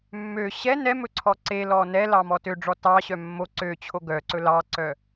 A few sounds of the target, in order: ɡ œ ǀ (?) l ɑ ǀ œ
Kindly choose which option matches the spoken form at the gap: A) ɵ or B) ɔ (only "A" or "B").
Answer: A